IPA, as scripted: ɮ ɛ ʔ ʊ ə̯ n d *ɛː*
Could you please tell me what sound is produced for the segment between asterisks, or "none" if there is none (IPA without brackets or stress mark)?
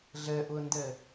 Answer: ɛ